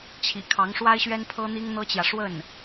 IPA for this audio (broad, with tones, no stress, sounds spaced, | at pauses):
t͡ɕʰ ḭ˨˩ kʰ ɑ˧˥ ŋ ʂ w a˥ ɪ̯ ɕ ɥ ɛ˥ n pʰ ɤ˥ n̪ i˥ ŋ n̪ ɤ˥ t͡ɕ j ä˨ ʂ w ə˥˩ n